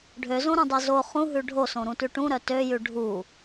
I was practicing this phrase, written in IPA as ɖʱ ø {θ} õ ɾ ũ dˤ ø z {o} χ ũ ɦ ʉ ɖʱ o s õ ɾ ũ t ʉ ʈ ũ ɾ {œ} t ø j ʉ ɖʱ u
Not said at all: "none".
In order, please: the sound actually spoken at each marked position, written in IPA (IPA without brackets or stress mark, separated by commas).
z, o, œ